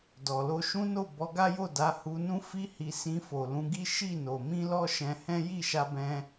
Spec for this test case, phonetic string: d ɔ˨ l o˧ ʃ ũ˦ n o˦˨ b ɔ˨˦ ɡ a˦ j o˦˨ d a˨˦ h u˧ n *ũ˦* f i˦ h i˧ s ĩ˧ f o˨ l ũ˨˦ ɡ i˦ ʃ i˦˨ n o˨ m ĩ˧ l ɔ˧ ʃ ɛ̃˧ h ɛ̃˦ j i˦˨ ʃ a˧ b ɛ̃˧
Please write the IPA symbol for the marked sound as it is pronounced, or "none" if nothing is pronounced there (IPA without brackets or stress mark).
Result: ũ˦